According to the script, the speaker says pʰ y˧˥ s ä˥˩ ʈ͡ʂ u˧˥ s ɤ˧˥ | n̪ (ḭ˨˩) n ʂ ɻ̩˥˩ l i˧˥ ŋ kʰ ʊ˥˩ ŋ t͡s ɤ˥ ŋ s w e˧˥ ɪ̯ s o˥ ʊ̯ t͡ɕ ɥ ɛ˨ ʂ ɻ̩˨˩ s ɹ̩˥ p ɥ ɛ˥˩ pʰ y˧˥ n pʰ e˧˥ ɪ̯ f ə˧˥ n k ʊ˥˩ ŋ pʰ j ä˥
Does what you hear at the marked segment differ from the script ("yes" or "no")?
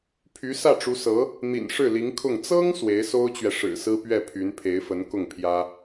no